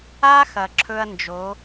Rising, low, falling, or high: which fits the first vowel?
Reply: high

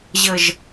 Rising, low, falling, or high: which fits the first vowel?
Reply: high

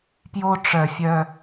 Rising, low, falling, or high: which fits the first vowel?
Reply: high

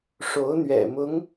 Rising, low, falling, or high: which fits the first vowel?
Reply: rising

